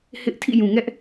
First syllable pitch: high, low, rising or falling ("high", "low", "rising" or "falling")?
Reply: high